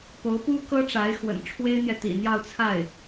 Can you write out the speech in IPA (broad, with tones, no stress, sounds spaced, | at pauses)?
p o˧˥ ʊ̯ p u˥ k ɤ˥ ʈ͡ʂ a˧˥ ɪ̯ x w ə̰˨˩ n ʈ͡ʂʰ w e˥ ɪ̯ n̪ j ɛ˨ t̪ ḭ˨˩ n̪ j ɑ˥˧ ʊ̯ t͡sʰ a˥˩ ɪ̯